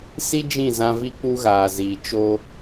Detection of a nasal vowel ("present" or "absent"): present